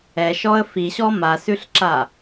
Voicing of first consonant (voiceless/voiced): voiceless